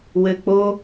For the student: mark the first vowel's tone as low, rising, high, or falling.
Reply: low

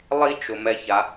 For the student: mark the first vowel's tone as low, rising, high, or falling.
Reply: high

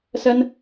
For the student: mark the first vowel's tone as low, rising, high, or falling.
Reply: high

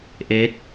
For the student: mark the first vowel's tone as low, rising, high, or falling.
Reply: rising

